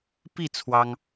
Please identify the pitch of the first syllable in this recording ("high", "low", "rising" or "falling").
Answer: falling